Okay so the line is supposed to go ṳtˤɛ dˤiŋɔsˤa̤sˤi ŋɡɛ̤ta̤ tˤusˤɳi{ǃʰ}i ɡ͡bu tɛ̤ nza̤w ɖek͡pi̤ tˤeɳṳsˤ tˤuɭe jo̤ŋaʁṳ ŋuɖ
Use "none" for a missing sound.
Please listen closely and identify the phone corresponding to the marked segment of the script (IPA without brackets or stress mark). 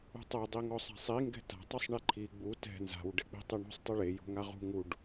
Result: ǃʰ